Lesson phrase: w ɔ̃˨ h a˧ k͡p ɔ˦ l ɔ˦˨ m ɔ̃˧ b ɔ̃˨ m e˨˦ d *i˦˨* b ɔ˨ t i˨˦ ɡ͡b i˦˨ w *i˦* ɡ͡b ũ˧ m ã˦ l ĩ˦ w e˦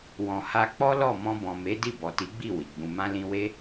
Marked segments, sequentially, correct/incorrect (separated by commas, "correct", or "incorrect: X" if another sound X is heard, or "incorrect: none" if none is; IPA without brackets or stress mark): correct, incorrect: i˨